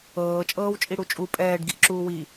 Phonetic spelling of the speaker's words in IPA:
ɤː t͡ʃʼ ɤː w t͡ʃʼ i ɽ u t͡ʃʼ u pʼ ɛː ɖ ɡ i ʔ ǁ uː w i

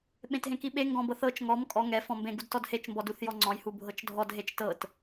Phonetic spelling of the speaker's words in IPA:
ɓ ẽ t ɦ ẽ k i ɓ e ŋ ɡ ɔ̃ b ɤ θ ɤ t͡ʃ ŋ ɔ m kʼ ɔ ŋ ɛ f ɔ̃ m b ẽ ɡ u d t ɔ d h e t͡ʃ m b ɔ d u θ j ɔ ŋ͡ǀ ɔ̃ j h u bʱ ɤ t͡ʃ dʱ ɔ d ɦ e t͡ʃ t ɤ t

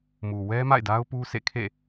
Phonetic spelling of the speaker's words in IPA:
m u˨ w ɛ˦ m a̰˦˨ ɪ̯ d a˦ ʊ̯ p u˦ sʰ ḛ˦˨ kʰ ḛ˦˨

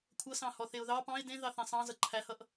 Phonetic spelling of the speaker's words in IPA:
kʷʰ ʌ s ɑ̃ h ɔ θ e ʊ̯ ð ɑ p ɑ̃ ɪ̯ d ẽ ð ɑ θ ẽ sˤ ɑ̃ z ʌ ǃʰ æ h ʌ ʔ

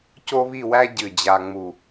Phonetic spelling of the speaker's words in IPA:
c o˥ β i˥˧ w æ˥ ɟ ɨ˧˩ d͡ʑ a˧ ŋ͡m u˧˩

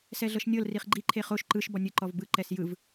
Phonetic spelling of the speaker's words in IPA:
s ɛ ɮ ɤ ʃ nʲ ɤ l r i χ ɡ͡ǃ i ǃʰ e χ o ʃ ǃ ɯ ʃ b ɔ nʲ ɯ ǃ ɔ v b ɯ ǃ ɛ s j ɯ v

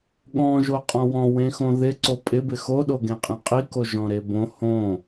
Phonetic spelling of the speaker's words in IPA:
ɠ ɔ̃ ʒ o qʼ ɔ̃ w ɔ̃ w ẽ x õ ð ɪ ǀ o pʼ ɪ b ɪ x o ɗ o ɡ ẽ qʼ ẽ qʼ i k o ʒ ɔ̃ ɾ e b õ h õ

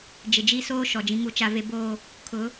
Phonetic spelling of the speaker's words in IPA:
d͡ʒ ɪ˨ d͡ʒ i˦ s oː˦ ʃ ɔ˨ d͡ʒ ĩ˦ ŋ u˦ t͡ʃ a˦ v e˦ b oː˦ | kʰ ʊ˨˦

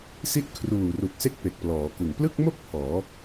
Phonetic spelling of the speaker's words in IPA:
s i˦˥ t̚ kʰ r uː˨˩ r u˨˩ k̚ s e˦˥ k̚ p e˨˩ k̚ p l ɔː˩˦ k ɯ˨˩ ŋ p l ɯ˥˩ k̚ m o˥˩ k̚ pʰ ɔː˩˦

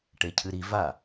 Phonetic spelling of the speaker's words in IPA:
ʈ e cʰ ɨ ɾ i v a

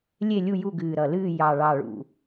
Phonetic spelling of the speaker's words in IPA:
lʲ e˦˨ lʲ u˦˨ j u˦˨ ɡ ɨː˨˩ ɾ ʌ˨˩ l ɨː˦˨ j ɑ˨˩ ɭ ɑ˨˩ ɭ ṵ˨˩

